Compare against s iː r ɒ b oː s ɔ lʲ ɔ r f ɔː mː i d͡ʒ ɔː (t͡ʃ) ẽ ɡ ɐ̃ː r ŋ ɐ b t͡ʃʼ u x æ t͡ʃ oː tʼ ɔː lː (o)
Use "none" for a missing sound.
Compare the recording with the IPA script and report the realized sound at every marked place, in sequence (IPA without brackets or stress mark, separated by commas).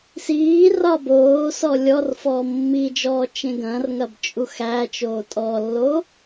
t͡ʃ, o